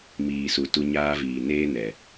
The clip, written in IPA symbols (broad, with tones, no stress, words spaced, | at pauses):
miː˨su˨tu˧ ɲaː˦viː˨ neː˦nɛ˨